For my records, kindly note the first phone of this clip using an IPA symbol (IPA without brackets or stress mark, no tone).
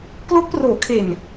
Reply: k